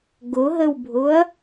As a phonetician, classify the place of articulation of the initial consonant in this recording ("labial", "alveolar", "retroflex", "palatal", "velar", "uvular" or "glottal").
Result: velar